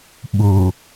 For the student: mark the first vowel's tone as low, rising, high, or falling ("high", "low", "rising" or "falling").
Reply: low